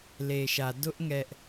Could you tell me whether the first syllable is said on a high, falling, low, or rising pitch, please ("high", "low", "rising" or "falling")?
low